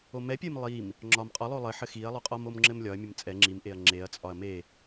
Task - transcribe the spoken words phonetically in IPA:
o m ɛ pʲ e m lˠ i m | ŋ͡ǁ ɒ m qʼ ɒ lˠ o lˠ ɘ ħ ɘ x i ɐ̯ lˠ o qʼ ɒ m o m ŋ͡ǁ ɘ m lʲ ɒ ɐ̯ mʲ ə m t͡sʼ ɛ ŋ͡ǁ i m ʔ e ɐ̯ ŋ͡ǁ e ɐ̯ t͡sʼ ɒ ɐ̯ m e

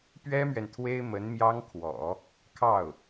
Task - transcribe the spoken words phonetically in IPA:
p ɥ ɛ˥ m ɥ ɛ˨ n t̪ʰ w e˥ ɪ̯ m ə˧˥ n m j ɑ˥ ŋ kʰ w ɔ̰˨˩˦ | kʰ ɑ˥˩ ʊ̯

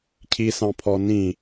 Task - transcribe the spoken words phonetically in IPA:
cʰ i s ɑ̃ pʰ ɔ n ĩ

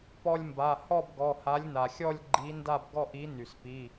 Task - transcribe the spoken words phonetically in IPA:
p ɔ˧ lʲ m b a˩˧˩ h ɔ˥˧ b ɡ ɔ˩˧˩ h a˨˥ lʲ n a˩ xʲ ɔ˥˧ lʲ ɡ͡ǃ i˨˥ n d a˥˧ b ɡ ɔ˥˧ ʔ i˨˥ n y˩ s p i˩˧˩

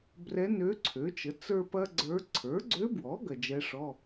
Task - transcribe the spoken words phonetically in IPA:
b r ɛ˧˥ n ø˧˥ ǀʰ ø˩˥ t͡ʃ ə˩˥ t͡s ə˞˥ p ɐ˥ ɡ͡ǀ ə˞˧˥ ǀʰ ə˞˩˥ ɡ͡ǀ ø˧˥ b w ɔ˩˥ ɡ ɐ˨ d͡ʒ ɛ˧˥ ʂ ɔ˧˥˧

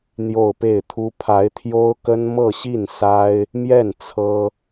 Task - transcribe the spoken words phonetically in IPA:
n̪ j o˥˧ ʊ̯ p e˥˩ ɪ̯ t̪ʰ u˥ pʰ a˧˥ ɪ̯ t̪ʰ j o˥ ʊ̯ k ə˥ n m ɤ˥˧ ɕ i˥˩ n s a˥ ɪ̯ | m j ɛ˥˩ n t͡sʰ ɤ˥

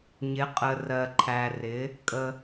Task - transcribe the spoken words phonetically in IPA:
ɲ ɪ˨˦ qʼ ə˨ r ɜ˨ ǃʰ æ˨ r ɪ˨˦ | kʼ ə˦

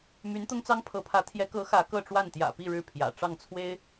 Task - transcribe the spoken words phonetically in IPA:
m y˧˥ n t̪ ʊ˥ ŋ t͡s ɑ˥ ŋ pʰ ɤ˧˥ pʰ ä˧˥ t̪ʰ j ɛ˧˥ k ɤ˧˥ x ä˧˥ k ɤ˥˧ ʈ͡ʂ w a˥˩ n t̪ j ä̰˨˩ p i˥˧ ɻ ɻ̩˥˩ pʰ j ä̰˨˩ ʈ͡ʂ ɑ˥˩ ŋ t͡sʰ w e˥ ɪ̯

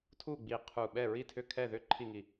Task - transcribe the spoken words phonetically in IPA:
tʰ u˥˨ ɡ͡b i˧˩ qʰ u˧˩ ɓ ɛ˥˨ ɹ i˥˨ tʰ ʏ˥˨ kʰ ɛ˥˨ ð ʏ˥˨ ǃʰ i˥˨ ŋ i˧˩

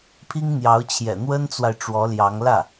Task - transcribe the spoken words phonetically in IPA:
pʰ i˥ ŋ n̪ j ɑ˧˥ ʊ̯ t͡ɕʰ j ɛ̰˨˩ n̪ w ə˥ n t͡s w a˨ ɪ̯ ʈ͡ʂ w ɔ˧˥ l j ɑ˧˥ ŋ l ä˥˩

